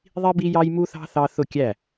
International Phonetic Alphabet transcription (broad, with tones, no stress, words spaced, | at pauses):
ðˤi˥bi˥jɑ˥j mu˥θɑ̤˥ θɑ˥ θʊ˥˨kʲæ˥˨